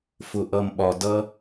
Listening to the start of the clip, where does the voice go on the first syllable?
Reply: low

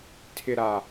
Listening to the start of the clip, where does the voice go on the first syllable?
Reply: low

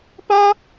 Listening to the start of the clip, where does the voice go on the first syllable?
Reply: high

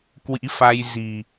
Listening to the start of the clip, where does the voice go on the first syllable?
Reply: rising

